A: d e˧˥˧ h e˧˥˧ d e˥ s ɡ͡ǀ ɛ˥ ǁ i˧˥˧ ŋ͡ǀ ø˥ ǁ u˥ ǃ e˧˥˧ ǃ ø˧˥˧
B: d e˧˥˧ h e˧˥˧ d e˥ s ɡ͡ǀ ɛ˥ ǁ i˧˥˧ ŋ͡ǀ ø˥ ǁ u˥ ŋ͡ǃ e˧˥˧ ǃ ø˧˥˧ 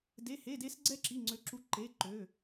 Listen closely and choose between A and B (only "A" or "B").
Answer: A